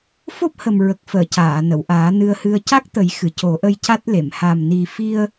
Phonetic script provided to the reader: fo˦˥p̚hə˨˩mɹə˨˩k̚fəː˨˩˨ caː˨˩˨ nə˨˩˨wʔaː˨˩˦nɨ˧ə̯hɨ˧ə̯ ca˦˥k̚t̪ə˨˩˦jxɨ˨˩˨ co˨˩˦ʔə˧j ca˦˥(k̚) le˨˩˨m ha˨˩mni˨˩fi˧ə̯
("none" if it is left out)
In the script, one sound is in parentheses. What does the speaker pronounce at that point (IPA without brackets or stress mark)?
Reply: t̚